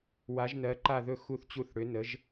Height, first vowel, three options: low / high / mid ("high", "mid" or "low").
low